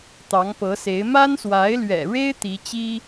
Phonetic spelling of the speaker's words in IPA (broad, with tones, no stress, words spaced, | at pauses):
t̪ɑ˧˥ŋpɤ˧˥se˧˥ɪ̯ ma˥nswa˧˥ɪ̯lɥɛ̰˨˩ɻe˥ɪ̯ t̪i˧˥t͡ɕi˥